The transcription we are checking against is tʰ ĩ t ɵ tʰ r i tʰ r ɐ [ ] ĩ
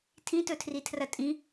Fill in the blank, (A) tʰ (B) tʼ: B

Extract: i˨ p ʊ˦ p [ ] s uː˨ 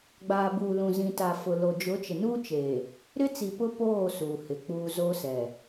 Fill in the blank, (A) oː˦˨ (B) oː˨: A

